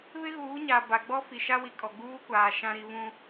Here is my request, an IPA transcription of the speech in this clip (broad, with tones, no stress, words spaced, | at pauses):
βɪ˦ɣuː˨˦ɲa˨ ba˨ ɡ͡bɔ˦fi˨ʃa˦wi˨ kʼɔ˨ɡ͡buː˦kʷaː˨ ʃã˦ ɾi˦ βũ˦